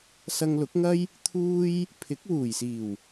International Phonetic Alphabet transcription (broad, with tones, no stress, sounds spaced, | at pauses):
s ɐ˧ ŋ l ʊ˨˥ k̚ ŋ ɐ˥ j | t̪ʰ uː˥ j | pʰ ɪ˨˥ k̚ w uː˨˩ j s iː˨˩ w